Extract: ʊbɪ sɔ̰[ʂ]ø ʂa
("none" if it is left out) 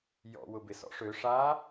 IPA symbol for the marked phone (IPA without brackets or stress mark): ʂ